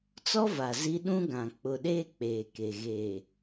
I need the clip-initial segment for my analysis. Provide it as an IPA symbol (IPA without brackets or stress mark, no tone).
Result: t͡s